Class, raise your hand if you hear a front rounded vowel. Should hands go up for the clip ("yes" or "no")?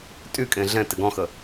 yes